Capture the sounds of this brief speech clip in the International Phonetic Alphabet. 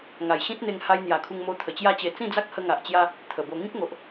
ŋa˨˩jɕĩ˦t̚n̪e˧ŋ ha˧jn̪ja˨˩kʰu˧ŋmo˧ t̪ʰə˨˩t͡ɕja˦t͡ɕe˧ t͡sĩ˥˧d͡za˦k̚hə˧ ŋa˨ʔt͡ɕja˧ | t̪ʰə˨˩bo˧ ŋĩ˦k̚ŋo˨ʔ

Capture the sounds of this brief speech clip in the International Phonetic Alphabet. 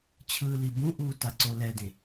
t͡ɕʰɯːlibũʔuː taǀolɛdẽ

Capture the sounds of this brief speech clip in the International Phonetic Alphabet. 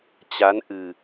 t͡ɕa˨˦nʔɨ˨˩

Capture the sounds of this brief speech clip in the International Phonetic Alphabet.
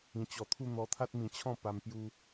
ĩ˧t͡ɕɔ˧t̪ʰu˥˧ n̪ɔ˧t̪ʰa˦t̚ mĩ˧t͡ɕʰɔ̃˥˧ pa˧mpju˧

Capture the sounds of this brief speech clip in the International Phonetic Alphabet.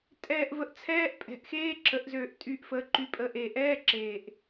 tʼɛː˨˩ʔvə˩˧ʔ t͡sʰɛː˧˥˧ʔpʼɛ̤˨˩ʔ xeː˧˥˧ǁə˩˧ʔzøː˨˩ʔ tʼy˨˩ʔfəː˩˧ǃy˩˧pʼəː˨˩ʔ e˨˩ʔɛː˧˥˧ǁeː˨˩ʔ

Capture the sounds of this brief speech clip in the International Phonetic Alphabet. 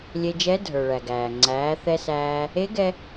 lʲe˧d͡ʒɛ˧˥ dʱə˞˩ɭæ˩ ɡæː˩ ŋ͡ǀæː˩˧ θɛ˧sæː˧ | e˧˥ɡɛ˧

